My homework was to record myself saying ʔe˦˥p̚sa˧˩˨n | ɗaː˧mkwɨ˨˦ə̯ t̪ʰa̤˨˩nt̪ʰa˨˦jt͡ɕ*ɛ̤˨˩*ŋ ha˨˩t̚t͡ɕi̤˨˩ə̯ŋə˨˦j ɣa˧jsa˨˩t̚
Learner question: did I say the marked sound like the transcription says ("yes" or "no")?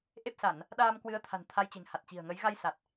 no